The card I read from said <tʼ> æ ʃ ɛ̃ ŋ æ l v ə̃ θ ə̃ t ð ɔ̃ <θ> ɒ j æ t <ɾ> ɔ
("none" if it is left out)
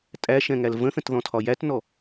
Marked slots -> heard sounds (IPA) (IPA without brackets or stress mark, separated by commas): tʼ, tʰ, n